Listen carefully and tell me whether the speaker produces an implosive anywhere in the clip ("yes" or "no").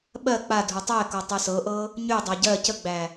yes